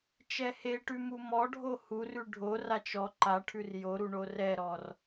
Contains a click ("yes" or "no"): yes